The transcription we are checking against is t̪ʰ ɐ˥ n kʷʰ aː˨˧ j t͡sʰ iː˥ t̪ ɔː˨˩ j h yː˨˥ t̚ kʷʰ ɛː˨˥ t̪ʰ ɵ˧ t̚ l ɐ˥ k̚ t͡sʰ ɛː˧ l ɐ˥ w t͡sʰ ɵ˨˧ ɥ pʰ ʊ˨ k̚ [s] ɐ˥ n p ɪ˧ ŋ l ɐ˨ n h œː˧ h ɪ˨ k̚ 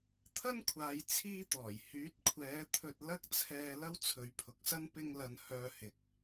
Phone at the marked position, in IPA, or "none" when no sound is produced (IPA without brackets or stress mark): s